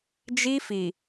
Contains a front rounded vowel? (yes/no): no